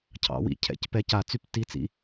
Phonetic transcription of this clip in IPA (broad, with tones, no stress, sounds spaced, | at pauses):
cʰ ɑ̰˩˥ w ḭ˩˥ cʰ ɛ̰˨˩ c p ɛ˧˥˧ c a˧˩˧ t͡s y˦˥ p t i˧˥˧ t͡s ḭ˧